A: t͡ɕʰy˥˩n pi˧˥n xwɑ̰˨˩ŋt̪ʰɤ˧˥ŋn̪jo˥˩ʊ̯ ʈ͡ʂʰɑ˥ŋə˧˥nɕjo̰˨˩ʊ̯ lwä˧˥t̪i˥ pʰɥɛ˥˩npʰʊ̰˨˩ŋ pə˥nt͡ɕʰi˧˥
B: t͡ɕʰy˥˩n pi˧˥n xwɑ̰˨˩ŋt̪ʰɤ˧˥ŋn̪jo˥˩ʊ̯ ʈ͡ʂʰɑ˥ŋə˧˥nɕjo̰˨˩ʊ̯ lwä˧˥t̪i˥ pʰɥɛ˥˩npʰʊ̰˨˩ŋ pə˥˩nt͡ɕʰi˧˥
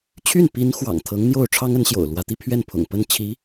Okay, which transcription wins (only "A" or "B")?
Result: B